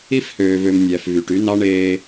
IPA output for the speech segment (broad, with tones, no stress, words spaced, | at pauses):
i˦fhøː˨vø˨m nʲæ˨fvy˨ʈy˦ nɑ˦ɳeː˦